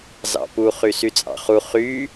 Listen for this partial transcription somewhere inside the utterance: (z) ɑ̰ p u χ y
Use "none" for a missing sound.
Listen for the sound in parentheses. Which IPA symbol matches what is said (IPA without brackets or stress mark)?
z